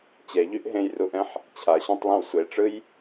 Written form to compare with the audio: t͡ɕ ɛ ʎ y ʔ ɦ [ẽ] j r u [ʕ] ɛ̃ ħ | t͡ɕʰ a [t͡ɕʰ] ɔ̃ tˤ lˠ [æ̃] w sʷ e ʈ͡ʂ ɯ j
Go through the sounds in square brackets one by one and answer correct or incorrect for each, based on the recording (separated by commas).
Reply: correct, incorrect, incorrect, incorrect